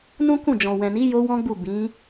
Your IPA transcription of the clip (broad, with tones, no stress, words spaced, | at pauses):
nũ˦kũ˦˨d͡ʒɔ̃˨ wɛ̃˨ni˨˦ jo˦wɔ̃˦ɡ͡bu˦˨ bĩ˨˦